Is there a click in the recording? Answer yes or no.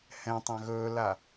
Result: no